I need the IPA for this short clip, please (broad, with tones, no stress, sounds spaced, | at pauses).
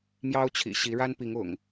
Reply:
m j ɑ˦ ʊ̯ t͡ɕʰ ḭ˨˩ ɕ i˨˦ ɻ a˦ n p i˨˦ ŋ ʊ̰˨˩ ŋ